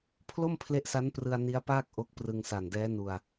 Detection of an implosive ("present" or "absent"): absent